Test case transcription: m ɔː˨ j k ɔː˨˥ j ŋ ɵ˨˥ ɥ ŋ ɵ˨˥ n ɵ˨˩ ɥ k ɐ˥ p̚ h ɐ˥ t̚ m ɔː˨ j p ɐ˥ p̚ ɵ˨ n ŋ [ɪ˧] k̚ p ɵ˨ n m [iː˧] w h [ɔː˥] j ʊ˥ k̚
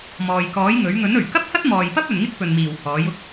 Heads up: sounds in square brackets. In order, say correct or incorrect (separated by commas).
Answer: incorrect, incorrect, incorrect